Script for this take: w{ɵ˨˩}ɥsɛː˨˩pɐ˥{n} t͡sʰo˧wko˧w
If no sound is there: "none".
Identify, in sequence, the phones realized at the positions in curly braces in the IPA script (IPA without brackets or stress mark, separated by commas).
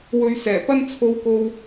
ɵ˨˧, n